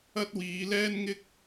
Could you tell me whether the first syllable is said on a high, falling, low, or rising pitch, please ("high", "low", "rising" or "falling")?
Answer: high